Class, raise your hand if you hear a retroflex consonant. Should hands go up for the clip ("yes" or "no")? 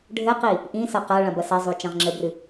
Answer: yes